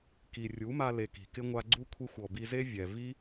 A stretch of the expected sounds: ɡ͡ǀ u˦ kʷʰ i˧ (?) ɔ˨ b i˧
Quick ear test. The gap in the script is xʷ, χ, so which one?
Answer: xʷ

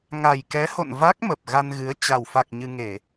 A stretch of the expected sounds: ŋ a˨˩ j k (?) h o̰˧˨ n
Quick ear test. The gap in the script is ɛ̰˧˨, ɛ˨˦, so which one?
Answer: ɛ˨˦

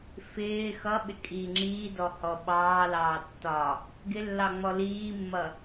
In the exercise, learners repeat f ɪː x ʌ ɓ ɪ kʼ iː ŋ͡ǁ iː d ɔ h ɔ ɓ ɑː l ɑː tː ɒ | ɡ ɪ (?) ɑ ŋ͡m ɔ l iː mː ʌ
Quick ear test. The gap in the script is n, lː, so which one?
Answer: lː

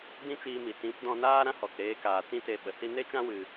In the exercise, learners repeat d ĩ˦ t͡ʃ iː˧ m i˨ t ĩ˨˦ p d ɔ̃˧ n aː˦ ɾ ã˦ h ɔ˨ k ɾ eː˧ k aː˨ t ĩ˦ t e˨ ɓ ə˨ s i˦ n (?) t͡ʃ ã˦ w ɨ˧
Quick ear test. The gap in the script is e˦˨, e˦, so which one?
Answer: e˦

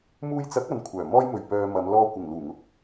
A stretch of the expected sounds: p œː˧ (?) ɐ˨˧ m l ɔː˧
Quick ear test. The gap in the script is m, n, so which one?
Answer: m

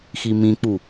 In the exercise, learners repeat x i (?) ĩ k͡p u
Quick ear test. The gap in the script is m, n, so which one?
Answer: m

